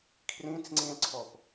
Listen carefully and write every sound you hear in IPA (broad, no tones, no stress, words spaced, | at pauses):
kʰrĩt͡sŋ͡ǀĩlǀʰɔp